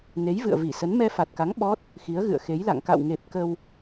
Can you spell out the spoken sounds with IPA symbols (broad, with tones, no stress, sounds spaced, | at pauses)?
n e˨˦ j v ɨ̰˧˨ ə̯ v i˧˩ s ə˨˦ n m ɛ˧ f a˨˩ t̚ k a˨˦ ŋ ɓ ɔ˦˥ t̚ | x i˨˦ ə̯ ɣ ɨ̰˧˨ ə̯ x e˨˦ j l a̰˧˨ ŋ k a̰˧˨ w ŋ e˨˩ p̚ k ə˧ w